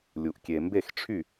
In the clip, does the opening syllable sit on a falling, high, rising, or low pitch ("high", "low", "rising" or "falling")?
low